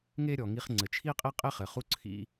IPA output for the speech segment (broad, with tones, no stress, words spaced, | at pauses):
ŋe˥ ɾʲɔ˩ ŋi˧χŋ͡ǀɘ˩t͡ʃʰi˥ qʼi˥qʼe˥ χɘ˩χu˥ǀʰḭ˧